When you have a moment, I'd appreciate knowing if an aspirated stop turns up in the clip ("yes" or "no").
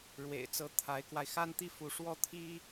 yes